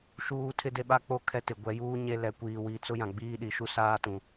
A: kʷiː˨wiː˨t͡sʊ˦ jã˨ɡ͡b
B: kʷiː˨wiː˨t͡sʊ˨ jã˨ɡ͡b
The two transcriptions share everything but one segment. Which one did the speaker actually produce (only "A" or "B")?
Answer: A